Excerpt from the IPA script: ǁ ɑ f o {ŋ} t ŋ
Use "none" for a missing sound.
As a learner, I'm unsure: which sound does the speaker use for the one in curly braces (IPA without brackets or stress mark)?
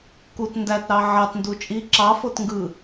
none